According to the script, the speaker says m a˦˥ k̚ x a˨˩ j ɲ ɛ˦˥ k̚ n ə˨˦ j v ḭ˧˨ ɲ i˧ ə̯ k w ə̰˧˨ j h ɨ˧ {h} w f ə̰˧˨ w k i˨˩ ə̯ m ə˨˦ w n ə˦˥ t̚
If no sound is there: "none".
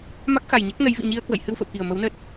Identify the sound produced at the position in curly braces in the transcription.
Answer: none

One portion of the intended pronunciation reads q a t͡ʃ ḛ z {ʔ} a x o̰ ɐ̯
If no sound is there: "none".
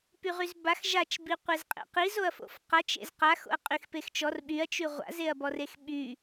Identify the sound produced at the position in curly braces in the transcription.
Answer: q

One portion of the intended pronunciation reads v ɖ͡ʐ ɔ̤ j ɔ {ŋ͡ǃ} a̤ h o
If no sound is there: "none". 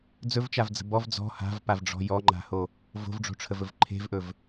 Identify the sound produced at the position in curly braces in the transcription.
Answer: ŋ͡ǃ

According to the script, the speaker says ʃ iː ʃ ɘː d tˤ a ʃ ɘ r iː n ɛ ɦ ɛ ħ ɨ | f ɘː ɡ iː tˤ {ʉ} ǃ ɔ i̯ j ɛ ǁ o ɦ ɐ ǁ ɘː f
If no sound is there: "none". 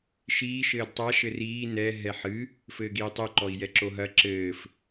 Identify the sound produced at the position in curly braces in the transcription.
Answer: ɘ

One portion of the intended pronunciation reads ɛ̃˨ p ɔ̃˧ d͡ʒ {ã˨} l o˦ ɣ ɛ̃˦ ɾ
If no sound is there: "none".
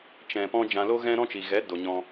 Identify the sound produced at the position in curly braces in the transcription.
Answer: ã˧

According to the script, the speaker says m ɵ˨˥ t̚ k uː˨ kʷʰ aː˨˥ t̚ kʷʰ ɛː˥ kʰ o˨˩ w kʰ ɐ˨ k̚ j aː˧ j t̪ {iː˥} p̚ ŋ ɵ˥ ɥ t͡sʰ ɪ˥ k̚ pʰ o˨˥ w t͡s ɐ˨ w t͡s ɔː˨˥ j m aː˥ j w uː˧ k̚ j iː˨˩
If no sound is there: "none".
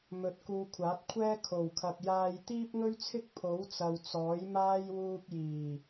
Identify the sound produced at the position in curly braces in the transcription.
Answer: iː˥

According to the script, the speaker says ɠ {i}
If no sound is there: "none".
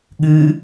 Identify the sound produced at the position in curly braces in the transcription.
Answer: ɨ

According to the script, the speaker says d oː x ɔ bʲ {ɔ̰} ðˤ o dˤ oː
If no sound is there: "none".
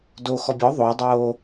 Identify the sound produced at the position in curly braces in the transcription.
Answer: ɔ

